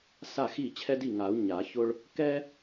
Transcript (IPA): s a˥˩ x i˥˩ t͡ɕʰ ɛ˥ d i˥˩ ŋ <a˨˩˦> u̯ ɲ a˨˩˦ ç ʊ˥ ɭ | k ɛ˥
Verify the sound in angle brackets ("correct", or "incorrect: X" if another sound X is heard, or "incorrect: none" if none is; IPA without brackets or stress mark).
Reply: correct